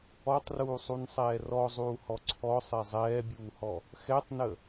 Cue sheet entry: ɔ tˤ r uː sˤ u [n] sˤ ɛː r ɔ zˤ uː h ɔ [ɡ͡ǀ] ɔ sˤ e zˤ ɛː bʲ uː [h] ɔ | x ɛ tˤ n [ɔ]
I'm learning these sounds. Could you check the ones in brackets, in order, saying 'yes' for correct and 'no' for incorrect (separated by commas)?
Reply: yes, no, yes, no